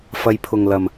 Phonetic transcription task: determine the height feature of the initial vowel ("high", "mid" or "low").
low